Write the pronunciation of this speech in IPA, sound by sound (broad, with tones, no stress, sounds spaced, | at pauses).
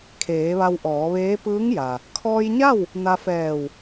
kʰ eː˩˧ ʋ a˧ w ʔ ɔː˩˧ ʋ eː˧˥ p ɯː˧˥ ŋ j a˩ | kʰ ɔː˧ j ɲ a˥˨ w | n a˧ f ɛː˧˩ w